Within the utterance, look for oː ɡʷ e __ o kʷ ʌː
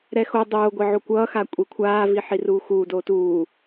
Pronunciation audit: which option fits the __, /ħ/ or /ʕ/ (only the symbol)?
ʕ